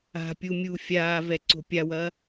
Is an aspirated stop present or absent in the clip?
absent